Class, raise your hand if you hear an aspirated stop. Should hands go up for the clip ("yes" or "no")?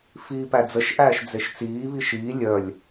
no